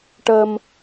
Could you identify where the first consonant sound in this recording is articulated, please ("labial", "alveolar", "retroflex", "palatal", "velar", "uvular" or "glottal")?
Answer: retroflex